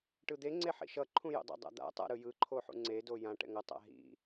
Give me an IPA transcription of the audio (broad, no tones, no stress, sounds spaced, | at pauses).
ʈ ɯ d̪ e ŋ͡ǀ e ħ ḭ ʃ ʌ ǃʰ ũ j o̰ dˤ ɛ̰ dˤ a̰ d̪ a̰ tˤ a̰ ɾ ɯ j ɯ ǃʰ o ħ ṵ ŋ͡ǀ e d o j ã ʈ ɛ̰ ŋ ʌ tˤ a̰ ɦ ḭ